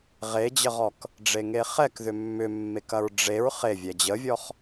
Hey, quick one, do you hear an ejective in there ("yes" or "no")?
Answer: no